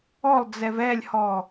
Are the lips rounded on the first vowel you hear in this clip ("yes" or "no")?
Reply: yes